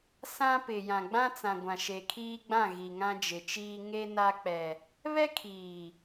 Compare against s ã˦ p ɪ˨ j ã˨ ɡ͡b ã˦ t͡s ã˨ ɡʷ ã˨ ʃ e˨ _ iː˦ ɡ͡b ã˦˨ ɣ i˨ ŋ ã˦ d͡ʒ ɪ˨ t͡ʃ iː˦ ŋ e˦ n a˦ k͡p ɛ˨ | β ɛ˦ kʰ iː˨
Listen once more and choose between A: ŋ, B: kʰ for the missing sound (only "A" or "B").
B